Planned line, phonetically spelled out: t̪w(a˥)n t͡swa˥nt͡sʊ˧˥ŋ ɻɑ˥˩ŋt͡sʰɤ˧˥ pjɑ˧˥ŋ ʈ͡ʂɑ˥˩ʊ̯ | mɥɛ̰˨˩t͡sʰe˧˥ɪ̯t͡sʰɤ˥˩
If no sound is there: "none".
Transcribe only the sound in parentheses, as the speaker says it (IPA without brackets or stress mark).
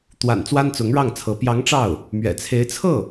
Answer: a̰˨˩